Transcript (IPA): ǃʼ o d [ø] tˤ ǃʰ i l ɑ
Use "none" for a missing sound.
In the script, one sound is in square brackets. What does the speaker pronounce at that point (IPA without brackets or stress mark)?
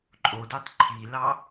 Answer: ø